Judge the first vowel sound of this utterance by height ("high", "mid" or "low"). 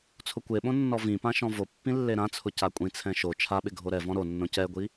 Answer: high